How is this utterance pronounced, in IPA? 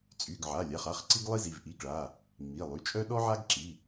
t͡sʼ y˩˧˩ ɡ ʕ a˩˧˩ lʲ a˩˧˩ χ a˩˧˩ χ ǀ i˥ ɡ lˠ i˥ z i˩˧˩ v ʔ i˩˧˩ ɡ ɭ a˩˧˩ | ŋ͡m i˩˧˩ lˠ y˩˧˩ t͡ʃʼ œ˥ ɗ ɔ˥ ʕ a˥ ɡ ǁ i˩˧˩

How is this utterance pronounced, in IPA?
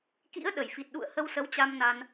k ḭ˧˥ ə̯ ɗ ə˧˩ j f i˨˩ t̚ ɗ ṵ˧˨ ə̯ h ə˧ w s ə˨˦ w t͡ɕ a˧ m n a˧ n

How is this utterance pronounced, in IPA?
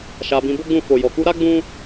ʃ a˧ b ĩ˧ b o˦ ɡ͡b ũ˦˨ f o˨ j ɔ˨ k u˧ ɾ a˦ ɡ͡b ũ˦

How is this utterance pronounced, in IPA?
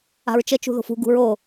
a̤ ɹ t͡ʃ ə t͡ʃ ṳ ð o̤ f ṳ ɡ ṳ ɹ o

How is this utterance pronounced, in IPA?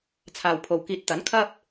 t͡sʰ aː˨ w pʰ o˨ w k iː˨˥ t̚ t̪ ɐ˨˥ n kʰ ɐ˥ p̚

